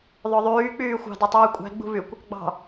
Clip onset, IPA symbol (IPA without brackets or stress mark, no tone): ðˤ